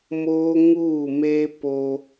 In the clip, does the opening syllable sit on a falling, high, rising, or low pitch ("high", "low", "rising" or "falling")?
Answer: high